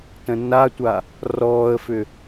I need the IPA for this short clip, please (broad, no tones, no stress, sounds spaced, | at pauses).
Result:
t ə̃ nː a tʷ a | r ɔː ə̯ f ʏ